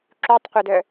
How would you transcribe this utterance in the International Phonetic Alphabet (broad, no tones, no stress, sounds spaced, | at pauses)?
ǁ u tˤ qʷ ɛ d œ